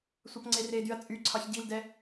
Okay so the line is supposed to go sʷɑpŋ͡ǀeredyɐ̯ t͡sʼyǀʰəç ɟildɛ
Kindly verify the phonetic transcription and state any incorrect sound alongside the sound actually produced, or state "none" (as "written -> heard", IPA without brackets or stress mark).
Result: ə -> ɑ